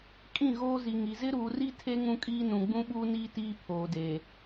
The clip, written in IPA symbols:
kʼ ĩ˦˨ ɣ oː˦ z i˨ ŋ i˨ z ɪ˦ ɾ uː˨ r i˦ tʰ e˦ ŋ ũ˦ kʼ iː˦ n ũ˨ ɡ͡b ũ˦ ɓ uː˦ n iː˦ t iː˦ pʰ oː˨ d e˨

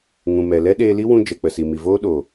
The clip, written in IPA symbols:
ŋ ũ˨ m ɛ˨ l ɛ˦ ɗ eː˧ l i˦ w ũ˧ d͡ʒ ɛ˨ k͡p ə˨ s i˨ m i˨ v oː˦ ɗ o˨

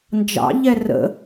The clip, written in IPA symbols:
n d͡ʒ ɑ̰ ʎ ɛ r ə̰

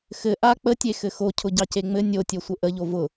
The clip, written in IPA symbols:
x ɘ ʔ a k͡p ə tʲ e x ɘ x o cʰ ʊ ɟ ɑ c e ŋ͡m ɘ nʲ o tʲ o sʷ ə ʔ ə ʎ o v ʊ

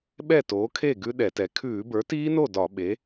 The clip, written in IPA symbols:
ɓ ɛ˥˩ t oː˩˥ kʰ e˥˩ ɡ ʉ˦˥ ɗ ɛ˧˩˧ t ɛ˩˥ kʰ ʉː˧˩˧ b ə˞˩˥ t iː˦˥ n o˥˩ d ɒ˧˩˧ ɓ e˩˥

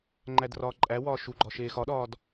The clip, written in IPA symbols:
ŋ͡ǃ æ d r ɒː ǃʼ æ w ɒː ʃ u ɡ͡ǃ ɒ ʃ eː x ɒ ɗ ɒː d

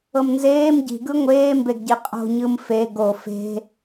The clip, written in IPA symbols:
ɤ m n z eː m ɟ i̤ ɡ ɯ ŋʷ eː m b e ɡ ɟ i qʼ o̤ ɲ ɯ m f e ɡ o f e̤

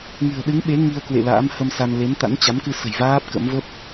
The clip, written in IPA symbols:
ŋ ɨ̤˨˩ ə̯ ɗ ɨ˨˦ ŋ ɓ e˨˦ ŋ i˧ ə̯ k w ḛ˧˨ l a̰ː˧˥ m h ə˧ m s a˧ n l e˨˦ n t̪ a̰˧˥ n t͡ɕ a˨˦ m k ɨ˧ s ə̤˨˩ j v aː˦˥ p̚ k ə̰˧˥ m v ə˦˥ p̚

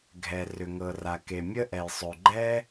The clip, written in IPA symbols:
ɡʱ ɛ˩ r ʏ˩ ŋ ɤ˩ r a˩ k e˩ mʲ ə˥ ʔ ɛ˩ j sˤ ø˩ ɡ͡ǃ ɛ˥

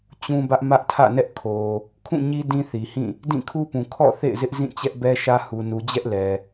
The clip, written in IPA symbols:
t͡ɕ ũ˦ b ä˦ ʔ m ä˦ ʔ tʰ ä̰˦˨ n ɛ˦ ʔ kʰ o˨ | kʰ ũ˦˨ ɲ i˦ d ĩ˦ θ i˨ h ĩ˦˨ | d ĩ˦˨ kʰ u˦ p ũ˨ kʰ ɔ̰˦˨ θ ḛ˦˨ ɪ̯ z ɪ˦ ʔ z ĩ˦˨ t͡ɕ ɛ˦ ʔ b ɛ˦ ʃ ä˦ h u˨ n u˨ d͡ʑ ɛ˦ ʔ l ɛ˨

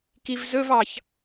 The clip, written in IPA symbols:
k i v z ɵ v ɑ ç

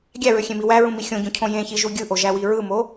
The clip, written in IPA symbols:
ɡʲ æ ɹ ø xʲ ẽ m i w æ ɹ ũ m i xʲ õ ɟ ũ cʰ õ j ẽ ç i ʒ u ɡʲ ɯ ʔ o ʒ æ w i ɹ ɯ m o

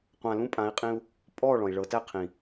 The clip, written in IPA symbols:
qʷ ã˧ l ũ˦ pʼ ã˨˦ i̯ qʼ ĩ˧ u̯ | pʼ ɔ˦˨ ɭ ɔ̃˨ i̯ ɭ ɤ˨˦ t æ˦ qʰ ĩ˨

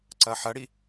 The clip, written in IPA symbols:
ǀ ɐ ħ ɐ ɽ i

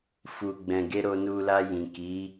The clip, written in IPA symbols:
f u˨ ɡ͡b ɛ̃˨ ɡ e˧ ɾ o˧ n u˧ l a˧ j ĩ˨ k i˨˦

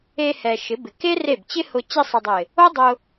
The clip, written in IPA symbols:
e˧ h ɛ˨ ʃ ɪ˨˦ b ɪ˨ k e˦ r e˦˨ b t͡ɕ ɪ˦ h ʊ˧ t͡ɕ e˧ sˤ ɪ˨ dˤ ɪ˨ | o˦ dˤ ʊ˧

